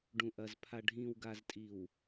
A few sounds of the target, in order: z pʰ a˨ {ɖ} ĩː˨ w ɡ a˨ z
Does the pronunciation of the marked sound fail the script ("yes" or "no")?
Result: yes